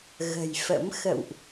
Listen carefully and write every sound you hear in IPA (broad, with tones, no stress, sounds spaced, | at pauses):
ɣ ə̤˨˩ j f ə̰˧˥ m x ə̰˧˨ w ʔ